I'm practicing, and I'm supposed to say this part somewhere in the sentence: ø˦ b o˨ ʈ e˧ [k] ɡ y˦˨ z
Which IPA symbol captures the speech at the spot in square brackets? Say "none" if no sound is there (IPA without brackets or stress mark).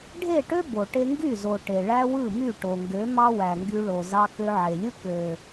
ŋ